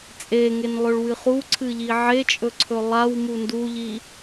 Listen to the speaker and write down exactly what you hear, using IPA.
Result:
t͡sʼ e ŋ e n lˠ ɵ ɭ w ɨ χ u ǀʰ ɨ ʎ i ʕ e t͡ʃʼ ɵ ǀʰ ɵ lˠ a w m u n d u ʎ i

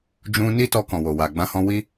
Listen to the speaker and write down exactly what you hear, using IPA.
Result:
d͡ʒ ũ˧ n i˦ t ɔ˧ k ɔ̃˨ w o˨ w a˨ ɡ͡b ã˧ h ɔ̃˧ w i˦

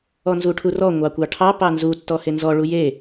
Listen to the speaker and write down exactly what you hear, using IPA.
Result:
ɔ n z u ʈʰ u r ɔ ŋʷ ɑ kʷ ɑ ʈʰ ɑ p ɑ n z u tː ɔ h e n z ɔ ɭ u j e

